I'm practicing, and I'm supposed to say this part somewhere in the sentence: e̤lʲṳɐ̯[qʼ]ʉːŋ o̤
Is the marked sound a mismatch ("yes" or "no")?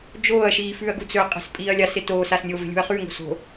yes